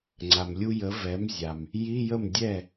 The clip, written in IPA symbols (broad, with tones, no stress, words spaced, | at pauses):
ŋ͡ǀa˩mlʲu˧jə˩˥ vɛ˩˥mzʲa˩m | ji˧˥˧jə˥˩m dʲɛ˥˩